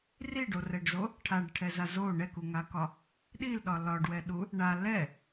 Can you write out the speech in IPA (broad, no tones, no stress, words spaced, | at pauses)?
riɖorɛɖzo | ʈʰaɖʈʰɛza zo ɳɛkuŋakɒ | ɗilɗɒ lɒɖwɛɗu | ɳa lɛ